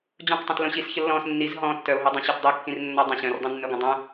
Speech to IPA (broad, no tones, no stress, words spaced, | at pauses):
d͡ʑõqtˤõt lõɕisçə lːɔ̃s nːiz ɦɔ̃ tːœo̯ɦidˤœ̃ ɕœtdˤikːĩr nːɔdˤə̃ ɕœ̃rdˤœ̃nːœɡʷə̃ dˤœ̃